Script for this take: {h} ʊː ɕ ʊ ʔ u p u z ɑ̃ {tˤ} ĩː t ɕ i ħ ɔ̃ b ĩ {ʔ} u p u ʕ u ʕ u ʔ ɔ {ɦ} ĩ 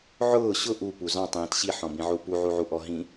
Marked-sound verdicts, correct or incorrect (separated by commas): incorrect, correct, incorrect, correct